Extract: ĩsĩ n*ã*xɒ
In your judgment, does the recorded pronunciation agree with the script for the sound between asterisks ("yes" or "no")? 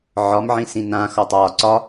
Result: yes